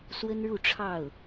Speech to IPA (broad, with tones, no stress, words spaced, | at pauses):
swə˥nɻu˥˧ʈ͡ʂʰɑ˥˩ʊ̯